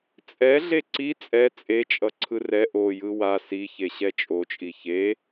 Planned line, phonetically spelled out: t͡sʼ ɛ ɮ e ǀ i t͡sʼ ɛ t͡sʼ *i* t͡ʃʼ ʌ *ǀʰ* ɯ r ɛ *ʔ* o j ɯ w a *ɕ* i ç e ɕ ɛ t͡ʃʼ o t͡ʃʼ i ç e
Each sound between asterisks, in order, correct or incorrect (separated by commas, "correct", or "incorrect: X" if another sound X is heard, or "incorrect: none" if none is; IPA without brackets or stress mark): incorrect: e, correct, correct, incorrect: s